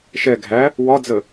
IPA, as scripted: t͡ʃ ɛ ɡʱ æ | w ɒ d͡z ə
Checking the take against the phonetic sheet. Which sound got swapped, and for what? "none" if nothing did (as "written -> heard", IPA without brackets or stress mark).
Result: t͡ʃ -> ʃ